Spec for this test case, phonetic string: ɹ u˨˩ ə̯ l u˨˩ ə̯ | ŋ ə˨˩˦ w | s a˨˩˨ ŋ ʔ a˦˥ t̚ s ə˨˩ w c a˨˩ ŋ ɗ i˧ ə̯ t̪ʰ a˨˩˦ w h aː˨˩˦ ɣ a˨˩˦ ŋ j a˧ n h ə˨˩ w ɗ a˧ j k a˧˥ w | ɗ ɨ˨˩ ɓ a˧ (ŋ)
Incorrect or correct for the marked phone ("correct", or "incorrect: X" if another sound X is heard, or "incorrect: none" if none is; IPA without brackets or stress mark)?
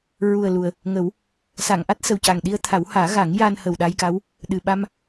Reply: incorrect: m